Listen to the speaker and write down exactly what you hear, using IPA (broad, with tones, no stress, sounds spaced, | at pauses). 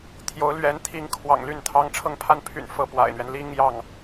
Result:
t̪ʰ j o˧˥ ʊ̯ l ɥ ɛ˧˥ n t̪ʰ i˧˥ ŋ kʰ w ɑ̰˨˩ ŋ l y˥˩ n t̪ʰ ɑ˥ ŋ ʈ͡ʂʰ ɤ˥˧ ŋ pʰ a˥˩ n pʰ y̰˨˩ n f ɤ˥˩ p w a̰˨˩ ɪ̯ n̪ ɥ ɛ˦ n l i˥ ŋ j ɑ˥˩ ŋ